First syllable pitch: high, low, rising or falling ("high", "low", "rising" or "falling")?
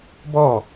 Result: falling